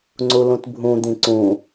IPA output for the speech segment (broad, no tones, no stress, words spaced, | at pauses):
ŋ͡ǀulũtbʱũ d̪ĩǀũ